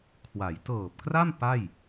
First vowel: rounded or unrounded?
unrounded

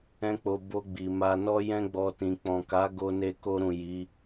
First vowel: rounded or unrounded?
unrounded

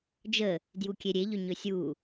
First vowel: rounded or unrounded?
unrounded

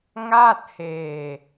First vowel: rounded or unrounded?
unrounded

